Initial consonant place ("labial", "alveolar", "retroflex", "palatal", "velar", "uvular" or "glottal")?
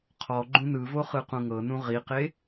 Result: uvular